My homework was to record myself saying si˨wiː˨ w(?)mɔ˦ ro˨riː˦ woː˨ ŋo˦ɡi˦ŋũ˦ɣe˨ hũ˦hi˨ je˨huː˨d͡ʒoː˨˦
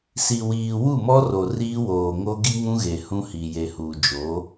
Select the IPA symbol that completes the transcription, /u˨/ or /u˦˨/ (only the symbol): u˦˨